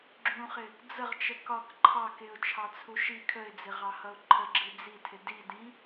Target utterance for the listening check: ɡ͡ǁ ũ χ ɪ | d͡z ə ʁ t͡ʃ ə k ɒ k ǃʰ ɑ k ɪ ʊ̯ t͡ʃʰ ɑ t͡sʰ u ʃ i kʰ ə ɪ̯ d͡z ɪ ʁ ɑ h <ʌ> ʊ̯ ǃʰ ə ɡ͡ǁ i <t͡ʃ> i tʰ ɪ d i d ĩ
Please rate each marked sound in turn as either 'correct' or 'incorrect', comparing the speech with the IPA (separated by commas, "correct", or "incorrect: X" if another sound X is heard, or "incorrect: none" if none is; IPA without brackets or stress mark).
correct, incorrect: d͡z